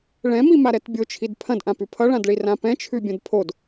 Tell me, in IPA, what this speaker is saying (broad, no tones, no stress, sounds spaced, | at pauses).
ɭ ɛ̃ m i m a ɾ ɛ t bʲ o t͡ʃʰ i d pʰ ɐ̃ d ʔ ã p ʉ pʰ ʌ ɭ ã d ɭ i r ã p ɛ̃ t͡ʃʰ ʉ bʲ ɐ̃ d pʰ o d